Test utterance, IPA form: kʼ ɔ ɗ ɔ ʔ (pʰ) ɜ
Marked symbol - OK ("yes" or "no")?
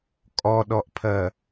yes